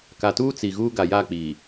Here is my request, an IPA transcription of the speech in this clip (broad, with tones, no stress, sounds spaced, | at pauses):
k a˨ t uː˦ t͡s i˨ ɣ uː˦ ɡ a˨ j aː˦˨ k͡p iː˨